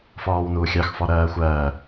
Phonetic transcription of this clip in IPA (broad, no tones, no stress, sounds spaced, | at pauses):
f ɔː w n uː xʲ ɑ x f ɔ ɾ ɜː xʷ ɜː